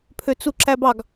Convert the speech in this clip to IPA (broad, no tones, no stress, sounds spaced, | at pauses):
pʰ ø t͡s u ǁ æ b ɑ ɡ